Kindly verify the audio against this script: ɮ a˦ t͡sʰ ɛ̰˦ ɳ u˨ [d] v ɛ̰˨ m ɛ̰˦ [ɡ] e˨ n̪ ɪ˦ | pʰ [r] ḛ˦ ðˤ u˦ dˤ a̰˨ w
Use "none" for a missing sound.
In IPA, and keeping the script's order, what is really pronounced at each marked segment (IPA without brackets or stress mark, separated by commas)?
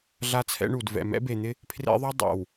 d, b, r